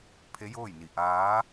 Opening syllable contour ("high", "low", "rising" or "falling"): rising